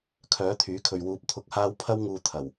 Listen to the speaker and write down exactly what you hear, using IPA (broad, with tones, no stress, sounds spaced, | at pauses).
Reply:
kʰ œː˨˥ t̪ʰ yː˨˥ kʰ ɵ˨ ɥ w uː˨ p̚ t̪ʰ ʊ˨ k̚ h aː˧ w pʰ ɐ˥ w ŋ uː˧ t̪ʰ ɐ˨˩ w